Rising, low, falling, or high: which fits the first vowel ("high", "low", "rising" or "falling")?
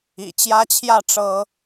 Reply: low